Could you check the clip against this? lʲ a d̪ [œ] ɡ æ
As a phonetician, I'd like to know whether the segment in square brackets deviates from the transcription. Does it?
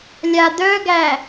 no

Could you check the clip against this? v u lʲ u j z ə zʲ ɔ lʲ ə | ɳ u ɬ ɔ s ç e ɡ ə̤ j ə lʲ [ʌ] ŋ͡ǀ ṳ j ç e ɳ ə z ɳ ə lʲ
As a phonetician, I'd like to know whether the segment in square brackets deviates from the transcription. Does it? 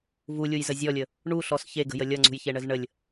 no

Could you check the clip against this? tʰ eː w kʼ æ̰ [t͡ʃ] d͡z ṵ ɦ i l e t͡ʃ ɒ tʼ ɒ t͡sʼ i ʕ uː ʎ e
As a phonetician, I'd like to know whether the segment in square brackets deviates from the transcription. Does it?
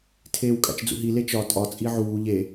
no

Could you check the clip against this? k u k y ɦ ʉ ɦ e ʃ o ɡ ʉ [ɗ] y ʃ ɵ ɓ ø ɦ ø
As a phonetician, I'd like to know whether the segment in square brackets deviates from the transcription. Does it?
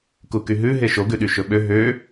no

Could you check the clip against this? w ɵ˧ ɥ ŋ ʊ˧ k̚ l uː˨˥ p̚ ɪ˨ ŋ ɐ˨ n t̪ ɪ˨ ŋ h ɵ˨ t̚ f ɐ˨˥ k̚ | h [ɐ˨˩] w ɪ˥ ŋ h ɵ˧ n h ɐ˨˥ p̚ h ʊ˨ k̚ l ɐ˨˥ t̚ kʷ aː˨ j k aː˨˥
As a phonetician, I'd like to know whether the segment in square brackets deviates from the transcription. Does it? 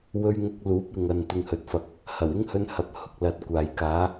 no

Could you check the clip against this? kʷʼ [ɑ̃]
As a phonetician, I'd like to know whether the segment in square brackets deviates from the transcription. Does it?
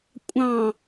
no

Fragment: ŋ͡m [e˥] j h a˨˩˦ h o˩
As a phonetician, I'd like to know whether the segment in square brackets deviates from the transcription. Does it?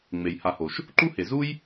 yes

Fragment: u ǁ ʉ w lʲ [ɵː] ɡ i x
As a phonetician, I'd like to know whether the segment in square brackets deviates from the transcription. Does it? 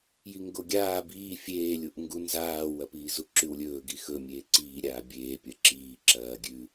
no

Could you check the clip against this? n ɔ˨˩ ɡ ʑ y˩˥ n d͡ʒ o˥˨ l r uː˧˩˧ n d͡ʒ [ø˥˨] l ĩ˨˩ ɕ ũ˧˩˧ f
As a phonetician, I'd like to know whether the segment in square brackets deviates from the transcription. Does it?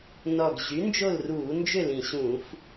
no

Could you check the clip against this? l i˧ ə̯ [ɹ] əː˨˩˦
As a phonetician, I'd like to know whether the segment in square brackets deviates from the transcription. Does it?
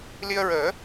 no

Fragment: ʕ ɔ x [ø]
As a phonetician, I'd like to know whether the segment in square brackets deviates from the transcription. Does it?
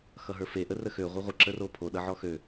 no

